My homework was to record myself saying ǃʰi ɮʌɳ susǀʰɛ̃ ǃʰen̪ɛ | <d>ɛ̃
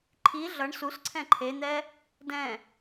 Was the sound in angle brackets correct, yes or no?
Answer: yes